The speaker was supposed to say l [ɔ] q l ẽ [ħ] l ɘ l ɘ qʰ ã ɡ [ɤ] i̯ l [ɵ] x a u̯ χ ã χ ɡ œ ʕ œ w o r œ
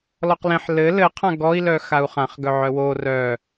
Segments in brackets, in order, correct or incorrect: correct, correct, incorrect: ɔ, incorrect: œ

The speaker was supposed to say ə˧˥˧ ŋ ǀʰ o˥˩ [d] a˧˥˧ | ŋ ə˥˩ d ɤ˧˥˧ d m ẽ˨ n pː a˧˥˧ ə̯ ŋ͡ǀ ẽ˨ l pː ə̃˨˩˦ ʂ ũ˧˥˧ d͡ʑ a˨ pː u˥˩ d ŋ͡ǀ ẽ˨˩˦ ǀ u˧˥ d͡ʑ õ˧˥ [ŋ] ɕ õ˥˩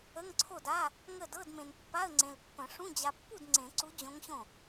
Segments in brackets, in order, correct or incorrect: correct, correct

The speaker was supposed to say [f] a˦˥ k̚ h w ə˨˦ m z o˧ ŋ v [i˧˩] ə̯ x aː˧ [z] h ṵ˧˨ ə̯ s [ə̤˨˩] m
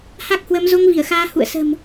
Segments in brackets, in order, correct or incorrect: incorrect: h, correct, incorrect: none, correct

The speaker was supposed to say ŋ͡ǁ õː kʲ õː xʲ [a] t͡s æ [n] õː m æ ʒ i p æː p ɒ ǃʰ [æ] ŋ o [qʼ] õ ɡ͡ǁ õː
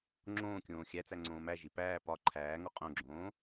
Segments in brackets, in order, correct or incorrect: incorrect: æ, incorrect: ŋ͡ǀ, incorrect: æː, correct

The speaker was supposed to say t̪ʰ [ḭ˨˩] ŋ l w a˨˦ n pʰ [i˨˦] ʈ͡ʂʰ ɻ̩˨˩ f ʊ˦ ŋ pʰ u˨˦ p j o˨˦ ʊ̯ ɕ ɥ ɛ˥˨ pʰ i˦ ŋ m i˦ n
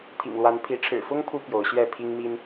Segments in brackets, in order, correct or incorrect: correct, correct

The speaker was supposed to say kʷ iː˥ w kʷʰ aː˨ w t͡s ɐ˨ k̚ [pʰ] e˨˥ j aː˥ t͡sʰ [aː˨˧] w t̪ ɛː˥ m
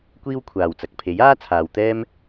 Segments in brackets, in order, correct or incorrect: correct, correct

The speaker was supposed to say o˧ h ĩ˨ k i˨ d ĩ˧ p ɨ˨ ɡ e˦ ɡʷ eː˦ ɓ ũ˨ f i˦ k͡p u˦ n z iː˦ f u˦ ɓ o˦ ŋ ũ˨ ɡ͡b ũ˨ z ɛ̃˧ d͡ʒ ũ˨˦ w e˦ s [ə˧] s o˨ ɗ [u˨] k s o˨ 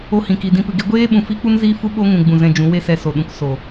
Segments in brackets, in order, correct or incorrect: incorrect: ɛ˧, incorrect: ũ˨

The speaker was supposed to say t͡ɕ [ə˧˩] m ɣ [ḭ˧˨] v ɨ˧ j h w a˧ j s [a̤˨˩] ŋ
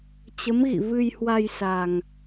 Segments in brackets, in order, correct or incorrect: incorrect: ə˨˦, correct, incorrect: a˧

